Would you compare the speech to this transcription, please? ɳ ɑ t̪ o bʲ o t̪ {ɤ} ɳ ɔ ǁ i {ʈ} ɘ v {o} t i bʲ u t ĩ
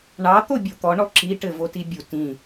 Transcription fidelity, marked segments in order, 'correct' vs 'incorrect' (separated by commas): incorrect, correct, correct